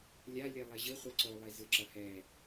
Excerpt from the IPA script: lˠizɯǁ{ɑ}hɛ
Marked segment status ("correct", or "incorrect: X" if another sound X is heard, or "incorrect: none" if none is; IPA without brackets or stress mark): incorrect: ʌ